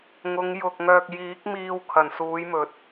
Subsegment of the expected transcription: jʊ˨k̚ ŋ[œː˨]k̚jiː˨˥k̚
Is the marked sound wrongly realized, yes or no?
no